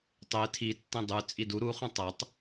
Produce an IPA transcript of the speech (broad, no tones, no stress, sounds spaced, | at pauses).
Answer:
tˤ e tʰ i tː ẽ dˤ ʉ t͡sʼ i d u ɾ u χ ũ tˤ ɐ tˤ